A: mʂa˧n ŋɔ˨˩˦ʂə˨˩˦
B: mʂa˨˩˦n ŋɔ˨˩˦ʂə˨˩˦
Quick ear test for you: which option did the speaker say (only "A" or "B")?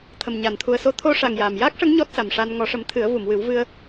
A